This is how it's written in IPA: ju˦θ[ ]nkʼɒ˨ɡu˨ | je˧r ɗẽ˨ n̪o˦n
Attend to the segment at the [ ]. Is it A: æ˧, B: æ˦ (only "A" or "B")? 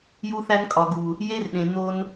B